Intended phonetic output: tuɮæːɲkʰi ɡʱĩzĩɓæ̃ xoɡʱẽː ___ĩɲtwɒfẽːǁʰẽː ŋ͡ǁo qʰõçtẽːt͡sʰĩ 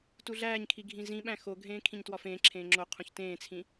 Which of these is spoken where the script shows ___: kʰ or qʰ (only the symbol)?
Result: kʰ